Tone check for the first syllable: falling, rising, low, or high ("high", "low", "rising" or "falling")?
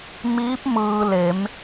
rising